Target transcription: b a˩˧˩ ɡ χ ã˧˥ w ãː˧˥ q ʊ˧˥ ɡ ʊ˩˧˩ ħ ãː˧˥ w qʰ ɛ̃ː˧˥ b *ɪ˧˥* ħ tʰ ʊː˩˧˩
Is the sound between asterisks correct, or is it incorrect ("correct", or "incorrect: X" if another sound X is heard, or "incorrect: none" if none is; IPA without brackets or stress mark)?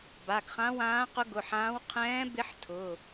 correct